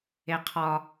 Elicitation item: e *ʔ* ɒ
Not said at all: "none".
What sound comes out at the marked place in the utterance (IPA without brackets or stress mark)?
qʰ